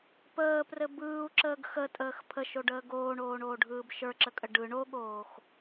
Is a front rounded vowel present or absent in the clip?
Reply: absent